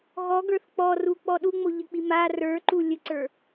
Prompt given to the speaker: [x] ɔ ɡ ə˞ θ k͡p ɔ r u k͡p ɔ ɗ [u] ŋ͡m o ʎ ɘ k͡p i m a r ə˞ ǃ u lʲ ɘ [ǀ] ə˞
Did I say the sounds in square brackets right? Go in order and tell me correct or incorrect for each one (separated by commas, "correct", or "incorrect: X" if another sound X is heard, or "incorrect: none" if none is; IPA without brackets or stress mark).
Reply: incorrect: ɣ, correct, correct